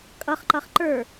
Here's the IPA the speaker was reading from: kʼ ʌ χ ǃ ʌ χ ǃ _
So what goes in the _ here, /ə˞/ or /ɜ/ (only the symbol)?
ə˞